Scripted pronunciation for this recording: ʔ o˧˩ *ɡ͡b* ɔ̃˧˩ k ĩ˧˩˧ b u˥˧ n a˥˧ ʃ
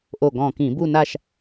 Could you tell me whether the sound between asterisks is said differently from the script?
yes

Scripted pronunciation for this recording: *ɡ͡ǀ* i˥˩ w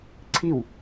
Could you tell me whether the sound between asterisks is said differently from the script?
yes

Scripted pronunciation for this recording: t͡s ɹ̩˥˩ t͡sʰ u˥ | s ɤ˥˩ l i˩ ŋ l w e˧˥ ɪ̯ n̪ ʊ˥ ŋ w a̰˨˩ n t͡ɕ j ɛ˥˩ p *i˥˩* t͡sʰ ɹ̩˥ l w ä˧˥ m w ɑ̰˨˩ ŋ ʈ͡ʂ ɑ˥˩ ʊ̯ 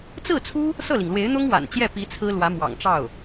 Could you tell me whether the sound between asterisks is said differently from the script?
yes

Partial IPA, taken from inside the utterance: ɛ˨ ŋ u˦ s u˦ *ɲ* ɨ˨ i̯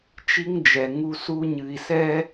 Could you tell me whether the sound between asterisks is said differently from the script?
no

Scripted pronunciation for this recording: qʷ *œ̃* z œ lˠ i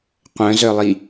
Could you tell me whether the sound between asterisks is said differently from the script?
no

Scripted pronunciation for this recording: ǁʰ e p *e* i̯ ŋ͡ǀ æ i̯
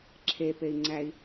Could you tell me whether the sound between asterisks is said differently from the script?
no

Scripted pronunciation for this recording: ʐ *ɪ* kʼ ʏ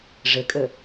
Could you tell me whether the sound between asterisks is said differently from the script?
no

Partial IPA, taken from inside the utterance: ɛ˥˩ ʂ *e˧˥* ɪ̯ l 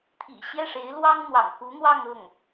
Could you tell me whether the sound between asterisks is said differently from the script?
no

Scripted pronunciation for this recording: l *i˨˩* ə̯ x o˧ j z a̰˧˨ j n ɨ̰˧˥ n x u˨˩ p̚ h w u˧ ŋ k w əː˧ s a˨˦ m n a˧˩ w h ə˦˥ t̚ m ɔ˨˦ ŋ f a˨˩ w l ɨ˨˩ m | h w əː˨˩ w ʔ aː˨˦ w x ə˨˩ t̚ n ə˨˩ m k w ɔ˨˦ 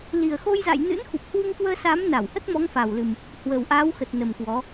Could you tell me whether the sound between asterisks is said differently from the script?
no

